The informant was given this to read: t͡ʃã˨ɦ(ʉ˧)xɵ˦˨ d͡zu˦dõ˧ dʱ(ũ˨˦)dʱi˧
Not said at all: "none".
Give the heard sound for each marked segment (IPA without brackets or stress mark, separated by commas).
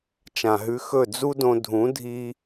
ʉ˧, ũ˨˦